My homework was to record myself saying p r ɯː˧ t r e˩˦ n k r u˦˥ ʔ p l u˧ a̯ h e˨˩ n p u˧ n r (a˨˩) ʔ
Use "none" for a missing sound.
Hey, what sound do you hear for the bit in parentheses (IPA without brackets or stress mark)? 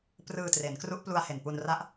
a˦˥